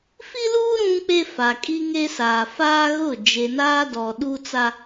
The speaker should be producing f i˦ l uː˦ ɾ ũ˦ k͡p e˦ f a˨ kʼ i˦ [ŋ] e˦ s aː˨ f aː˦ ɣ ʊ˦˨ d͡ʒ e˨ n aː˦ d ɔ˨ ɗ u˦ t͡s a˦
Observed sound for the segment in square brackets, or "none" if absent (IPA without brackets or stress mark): ŋ